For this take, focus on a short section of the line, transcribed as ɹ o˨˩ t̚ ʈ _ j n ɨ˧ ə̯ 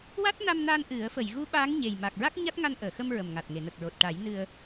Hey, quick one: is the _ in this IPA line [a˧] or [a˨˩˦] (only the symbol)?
a˨˩˦